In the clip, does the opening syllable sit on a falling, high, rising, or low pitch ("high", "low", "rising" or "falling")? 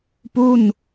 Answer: falling